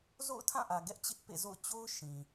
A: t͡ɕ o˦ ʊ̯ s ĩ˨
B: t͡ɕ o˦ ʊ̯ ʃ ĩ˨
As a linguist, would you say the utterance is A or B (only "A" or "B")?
B